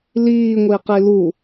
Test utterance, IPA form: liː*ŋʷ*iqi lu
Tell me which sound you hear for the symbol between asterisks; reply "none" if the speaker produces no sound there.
ŋʷ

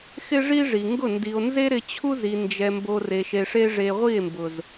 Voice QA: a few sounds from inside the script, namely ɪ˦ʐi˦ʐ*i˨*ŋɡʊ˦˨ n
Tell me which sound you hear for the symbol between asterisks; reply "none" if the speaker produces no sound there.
i˨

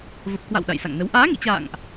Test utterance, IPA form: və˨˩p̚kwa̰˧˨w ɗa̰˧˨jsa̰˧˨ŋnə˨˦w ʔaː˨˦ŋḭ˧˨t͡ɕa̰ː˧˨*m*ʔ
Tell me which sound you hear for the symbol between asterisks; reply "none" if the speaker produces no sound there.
ŋ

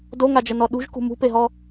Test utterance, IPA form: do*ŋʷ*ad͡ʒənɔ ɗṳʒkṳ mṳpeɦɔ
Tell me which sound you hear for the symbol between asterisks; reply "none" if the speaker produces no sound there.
ŋ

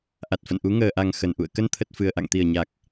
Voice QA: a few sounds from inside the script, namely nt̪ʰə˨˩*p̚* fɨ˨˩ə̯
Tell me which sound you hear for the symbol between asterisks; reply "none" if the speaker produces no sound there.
t̚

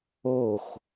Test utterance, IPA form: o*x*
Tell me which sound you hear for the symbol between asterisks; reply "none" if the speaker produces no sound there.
x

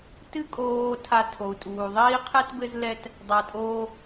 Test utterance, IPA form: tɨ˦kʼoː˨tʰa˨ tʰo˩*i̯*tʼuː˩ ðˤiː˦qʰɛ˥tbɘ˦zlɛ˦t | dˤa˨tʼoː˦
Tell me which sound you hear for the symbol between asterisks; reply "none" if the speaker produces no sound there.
u̯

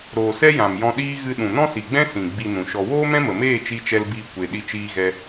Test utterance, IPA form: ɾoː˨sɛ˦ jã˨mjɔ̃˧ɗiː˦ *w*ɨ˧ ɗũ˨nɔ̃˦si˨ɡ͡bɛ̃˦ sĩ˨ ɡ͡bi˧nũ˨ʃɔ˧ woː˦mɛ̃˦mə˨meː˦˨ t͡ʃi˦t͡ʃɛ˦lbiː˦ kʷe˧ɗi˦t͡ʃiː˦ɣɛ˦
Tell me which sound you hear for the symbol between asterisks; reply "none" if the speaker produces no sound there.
ɣ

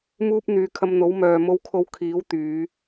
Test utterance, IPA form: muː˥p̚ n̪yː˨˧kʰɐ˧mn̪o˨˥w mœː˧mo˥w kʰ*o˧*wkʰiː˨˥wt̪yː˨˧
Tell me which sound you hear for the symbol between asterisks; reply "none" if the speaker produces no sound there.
o˧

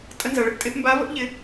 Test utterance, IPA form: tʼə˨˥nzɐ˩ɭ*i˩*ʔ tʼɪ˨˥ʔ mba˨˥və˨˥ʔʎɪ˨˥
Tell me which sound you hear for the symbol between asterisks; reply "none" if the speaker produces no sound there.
ɪ˩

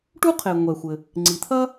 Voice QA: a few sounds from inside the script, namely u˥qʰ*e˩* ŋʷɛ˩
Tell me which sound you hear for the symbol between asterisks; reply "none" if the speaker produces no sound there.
e˩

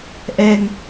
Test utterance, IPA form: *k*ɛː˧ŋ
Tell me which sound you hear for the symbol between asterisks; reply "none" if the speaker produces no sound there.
ʔ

